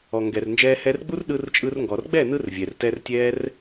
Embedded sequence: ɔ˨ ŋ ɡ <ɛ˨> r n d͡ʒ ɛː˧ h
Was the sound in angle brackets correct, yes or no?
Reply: yes